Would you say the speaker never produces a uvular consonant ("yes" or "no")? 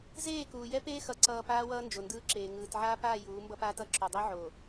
yes